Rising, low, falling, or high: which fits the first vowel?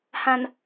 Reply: low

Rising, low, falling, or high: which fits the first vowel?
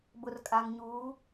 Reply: low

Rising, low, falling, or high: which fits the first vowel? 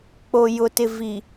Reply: low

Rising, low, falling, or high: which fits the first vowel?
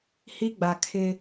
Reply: high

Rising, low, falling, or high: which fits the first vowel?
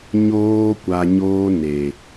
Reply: high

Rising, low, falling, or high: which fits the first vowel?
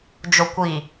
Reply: low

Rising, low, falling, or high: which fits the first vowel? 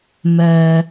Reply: low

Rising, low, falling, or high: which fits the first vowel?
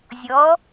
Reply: rising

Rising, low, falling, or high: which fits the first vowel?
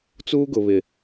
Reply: high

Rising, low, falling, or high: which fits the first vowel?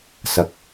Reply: low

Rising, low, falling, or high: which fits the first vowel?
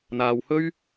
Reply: low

